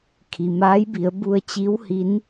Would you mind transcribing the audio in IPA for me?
kʰ i˩ m aː˧˥ j b i˩˧ ə̯ b u˧ ə̯ t͡ɕ i˧˥ w h i˧˥ n

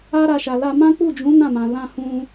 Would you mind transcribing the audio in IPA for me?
a˦ ɾ a˧ ʃ a˨ l a˧ m ã˦ k͡p u˦˨ d͡ʒ ũ˨˦ n ã˦˨ m ã˨ l ã˧ h ũ˧

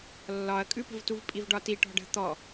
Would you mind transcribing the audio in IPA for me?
lː ɒ ɐ̯ kʼ ʉ p ə̤ v t u v pʼ i v ɖ ɒ t i ʈ ɔ̤ ɖ ə̤ t̪ ɔ

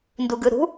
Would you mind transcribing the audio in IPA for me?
n d u ɡ ɯ ɾ ṳ

